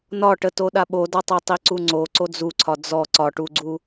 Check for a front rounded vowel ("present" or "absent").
absent